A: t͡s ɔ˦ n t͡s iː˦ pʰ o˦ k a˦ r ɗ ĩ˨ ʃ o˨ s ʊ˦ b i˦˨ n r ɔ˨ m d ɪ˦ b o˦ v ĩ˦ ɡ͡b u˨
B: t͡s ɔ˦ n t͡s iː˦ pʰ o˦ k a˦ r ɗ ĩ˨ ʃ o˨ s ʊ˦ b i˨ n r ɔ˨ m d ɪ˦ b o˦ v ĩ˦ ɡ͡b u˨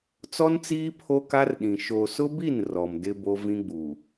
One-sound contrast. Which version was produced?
A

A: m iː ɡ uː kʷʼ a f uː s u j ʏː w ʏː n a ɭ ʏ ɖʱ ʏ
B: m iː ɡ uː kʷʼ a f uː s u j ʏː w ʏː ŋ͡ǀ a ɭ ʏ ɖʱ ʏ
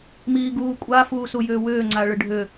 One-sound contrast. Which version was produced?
B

